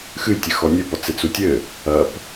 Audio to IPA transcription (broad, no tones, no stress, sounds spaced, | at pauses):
x ɨ j tʲ ɘ x ɔ nʲ ɘ p ɔ t͡s e t͡s u tʲ ɘ | ɐ p